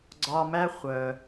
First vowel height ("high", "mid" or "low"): low